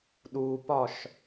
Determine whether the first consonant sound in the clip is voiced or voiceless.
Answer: voiced